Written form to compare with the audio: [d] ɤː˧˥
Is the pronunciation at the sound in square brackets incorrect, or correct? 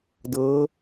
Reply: correct